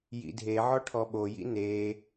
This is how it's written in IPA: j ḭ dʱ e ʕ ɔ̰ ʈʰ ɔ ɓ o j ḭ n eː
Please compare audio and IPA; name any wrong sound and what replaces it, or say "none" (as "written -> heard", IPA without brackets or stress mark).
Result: ɔ̰ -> ɔ